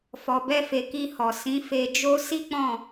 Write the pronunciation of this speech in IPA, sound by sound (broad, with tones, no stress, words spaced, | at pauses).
fɔ˨ bɛ˧fe˨ ki˧hɔ˨ sĩ˨˦fe˧d͡ʒo˦ si˦k͡pɔ̃˦˨